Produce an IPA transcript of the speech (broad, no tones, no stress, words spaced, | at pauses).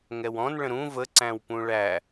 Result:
ŋɛwɔ̃n ɭə̃ɾũ və ǀæ̃wpũɭæ